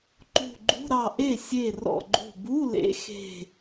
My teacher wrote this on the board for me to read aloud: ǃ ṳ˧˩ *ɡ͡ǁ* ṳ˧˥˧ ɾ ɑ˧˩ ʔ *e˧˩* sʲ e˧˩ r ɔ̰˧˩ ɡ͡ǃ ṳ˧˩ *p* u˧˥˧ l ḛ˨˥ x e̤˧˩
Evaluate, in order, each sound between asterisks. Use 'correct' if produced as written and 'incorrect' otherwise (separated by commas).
incorrect, incorrect, incorrect